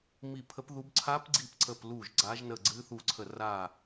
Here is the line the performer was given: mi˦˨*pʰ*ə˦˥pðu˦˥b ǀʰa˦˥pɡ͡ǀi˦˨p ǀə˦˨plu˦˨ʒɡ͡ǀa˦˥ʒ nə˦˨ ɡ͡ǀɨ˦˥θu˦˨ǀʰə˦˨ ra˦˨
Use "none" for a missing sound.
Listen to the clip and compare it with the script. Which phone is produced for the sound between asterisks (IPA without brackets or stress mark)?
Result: pʰ